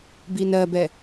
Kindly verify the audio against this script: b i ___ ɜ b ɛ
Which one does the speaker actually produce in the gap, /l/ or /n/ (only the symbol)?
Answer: n